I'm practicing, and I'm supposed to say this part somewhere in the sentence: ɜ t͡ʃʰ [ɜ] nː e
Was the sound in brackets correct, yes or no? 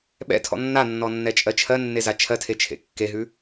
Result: yes